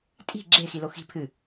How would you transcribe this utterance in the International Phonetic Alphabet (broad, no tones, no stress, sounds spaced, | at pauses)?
tʼ i̤ ɡ͡ǁ e x i l o x i̤ pʰ ɨ